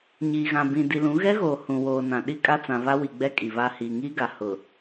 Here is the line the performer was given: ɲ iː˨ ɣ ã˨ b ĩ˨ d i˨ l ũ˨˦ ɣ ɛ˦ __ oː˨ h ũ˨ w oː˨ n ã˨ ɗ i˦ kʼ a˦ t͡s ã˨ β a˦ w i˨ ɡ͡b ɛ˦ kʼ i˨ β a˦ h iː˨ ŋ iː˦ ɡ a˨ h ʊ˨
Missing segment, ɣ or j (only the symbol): ɣ